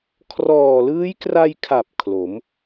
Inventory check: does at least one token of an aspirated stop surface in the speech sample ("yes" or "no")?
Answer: yes